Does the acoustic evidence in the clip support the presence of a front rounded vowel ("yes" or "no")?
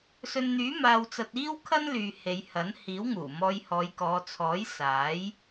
yes